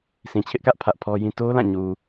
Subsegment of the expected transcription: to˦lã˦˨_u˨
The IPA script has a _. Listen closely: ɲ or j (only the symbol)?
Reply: ɲ